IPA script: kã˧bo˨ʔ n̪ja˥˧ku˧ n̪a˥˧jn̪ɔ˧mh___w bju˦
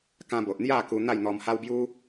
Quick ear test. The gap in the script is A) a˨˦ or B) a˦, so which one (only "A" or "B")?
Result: B